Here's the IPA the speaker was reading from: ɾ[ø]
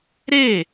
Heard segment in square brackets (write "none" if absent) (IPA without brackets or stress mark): e